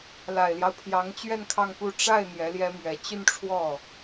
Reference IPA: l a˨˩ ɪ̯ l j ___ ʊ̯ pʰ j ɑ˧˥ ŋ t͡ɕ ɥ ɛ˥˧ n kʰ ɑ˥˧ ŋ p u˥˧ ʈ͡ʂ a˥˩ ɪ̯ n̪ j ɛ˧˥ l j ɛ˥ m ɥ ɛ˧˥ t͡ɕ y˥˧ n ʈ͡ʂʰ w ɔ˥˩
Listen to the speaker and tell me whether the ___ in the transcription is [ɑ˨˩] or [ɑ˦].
ɑ˦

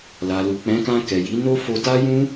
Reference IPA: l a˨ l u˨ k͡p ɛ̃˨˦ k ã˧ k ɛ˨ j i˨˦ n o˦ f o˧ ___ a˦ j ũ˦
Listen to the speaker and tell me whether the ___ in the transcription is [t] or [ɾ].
t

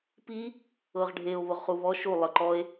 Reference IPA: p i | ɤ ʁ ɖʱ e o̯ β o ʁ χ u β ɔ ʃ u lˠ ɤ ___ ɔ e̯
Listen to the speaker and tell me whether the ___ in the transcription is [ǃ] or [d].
ǃ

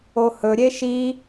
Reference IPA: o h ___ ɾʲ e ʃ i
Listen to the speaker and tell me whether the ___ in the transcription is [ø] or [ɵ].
ɵ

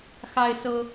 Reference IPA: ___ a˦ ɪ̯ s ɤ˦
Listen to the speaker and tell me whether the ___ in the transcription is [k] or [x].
x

